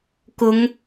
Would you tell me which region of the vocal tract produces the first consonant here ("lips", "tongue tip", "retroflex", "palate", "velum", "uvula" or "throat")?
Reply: velum